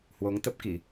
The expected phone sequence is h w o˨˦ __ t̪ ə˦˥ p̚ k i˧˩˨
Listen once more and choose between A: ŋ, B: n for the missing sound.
A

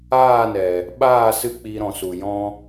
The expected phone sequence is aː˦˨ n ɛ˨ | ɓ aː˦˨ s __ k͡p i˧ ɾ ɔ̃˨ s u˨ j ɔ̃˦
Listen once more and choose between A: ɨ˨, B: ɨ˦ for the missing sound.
B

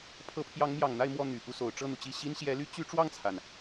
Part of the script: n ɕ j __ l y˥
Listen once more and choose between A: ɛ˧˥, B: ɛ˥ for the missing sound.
A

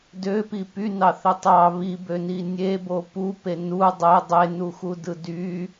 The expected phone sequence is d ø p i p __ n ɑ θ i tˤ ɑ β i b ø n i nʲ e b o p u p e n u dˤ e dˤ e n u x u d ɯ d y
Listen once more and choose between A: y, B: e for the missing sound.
A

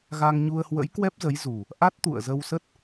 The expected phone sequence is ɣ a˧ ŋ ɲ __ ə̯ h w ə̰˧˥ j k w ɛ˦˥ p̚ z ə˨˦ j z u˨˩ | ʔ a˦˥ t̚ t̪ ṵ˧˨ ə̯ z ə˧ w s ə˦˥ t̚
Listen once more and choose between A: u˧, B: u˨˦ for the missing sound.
A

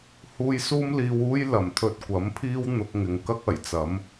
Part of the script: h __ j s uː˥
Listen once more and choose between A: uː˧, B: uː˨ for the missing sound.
A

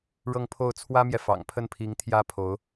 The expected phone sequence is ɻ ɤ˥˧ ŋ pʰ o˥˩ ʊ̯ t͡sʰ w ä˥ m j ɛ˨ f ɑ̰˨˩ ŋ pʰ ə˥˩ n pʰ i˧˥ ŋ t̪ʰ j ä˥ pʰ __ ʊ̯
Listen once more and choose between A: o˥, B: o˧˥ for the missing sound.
B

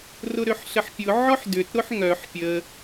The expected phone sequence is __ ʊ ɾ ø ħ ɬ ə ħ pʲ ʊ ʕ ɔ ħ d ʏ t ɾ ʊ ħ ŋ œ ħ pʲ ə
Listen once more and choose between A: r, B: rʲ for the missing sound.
A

